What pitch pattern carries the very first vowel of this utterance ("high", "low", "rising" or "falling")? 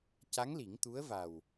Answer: rising